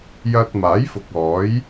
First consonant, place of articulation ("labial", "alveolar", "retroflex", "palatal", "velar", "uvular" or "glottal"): palatal